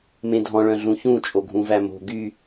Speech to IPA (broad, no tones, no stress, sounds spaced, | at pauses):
m ẽ dʱ ɔ̃ ɭ œ̃ ɮ ũ ç ũ t͡ʃʼ o ɡʱ ũ v æ m o̤ ɡ y